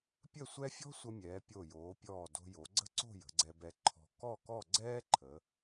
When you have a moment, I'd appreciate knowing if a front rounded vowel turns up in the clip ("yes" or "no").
no